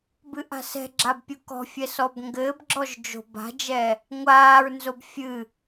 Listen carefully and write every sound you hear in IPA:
b ɨ ʔ a̤ s ɛ̤ ɡ͡ǁ a b pʲ u k ɔ̤ fʲ ɛ s ɔ b ŋ ɡ ɘː b ɡ͡ǁ ɔ ʒ d͡ʒ o̤ b a̤ d͡ʒ ɛ | ŋʷ aː ɹ n z o b fʲ ɨ

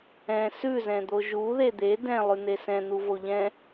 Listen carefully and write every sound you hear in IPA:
ɛ̃ s ʉ z ɛ̃ d̪ o ʒ u ð e d̪ e d ɛ̃ lˠ ʉ n̪ e s ɛ̃ n̪ u v o ʎ ɛ̃

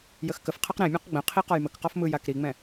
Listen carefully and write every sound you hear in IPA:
j ə x k ə f qʰ ɜ q ɾ ẽ mʲ ã q ɡ͡b ə̃ qʰ i q ɒ j m ə k q ɒ f m ɯ j a k ɾ i ŋ͡m ɛ̃

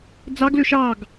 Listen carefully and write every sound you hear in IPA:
d͡z ɑ ɡ l ø ʃ ɑ ɡ

